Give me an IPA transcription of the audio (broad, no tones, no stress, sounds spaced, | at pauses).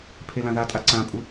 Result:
pʰ e l ã ð a tʼ a ǀ ã pʼ u